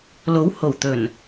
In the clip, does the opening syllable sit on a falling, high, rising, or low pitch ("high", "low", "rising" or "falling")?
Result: rising